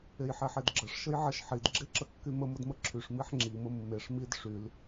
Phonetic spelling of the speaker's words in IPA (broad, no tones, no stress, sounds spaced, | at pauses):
e j ħ e ħ e d ɡ͡ǁ ə ʂ ʃ ə j ʕ ə ʃ ħ i d ɡ͡ǁ e ǁ ə kː y m ə m ə d m ə ǁʰ y ʂ m i ħ ŋ͡ǁ i m ə mː e ʂ m i d ʂ y l